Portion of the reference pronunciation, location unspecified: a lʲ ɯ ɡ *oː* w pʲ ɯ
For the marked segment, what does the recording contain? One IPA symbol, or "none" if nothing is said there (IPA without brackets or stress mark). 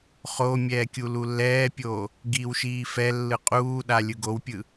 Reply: o